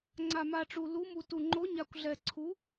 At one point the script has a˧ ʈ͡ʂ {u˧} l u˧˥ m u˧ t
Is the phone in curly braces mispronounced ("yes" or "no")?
no